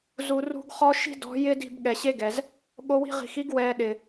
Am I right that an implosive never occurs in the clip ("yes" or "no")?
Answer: no